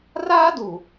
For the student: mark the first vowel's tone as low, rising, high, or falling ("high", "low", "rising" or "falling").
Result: high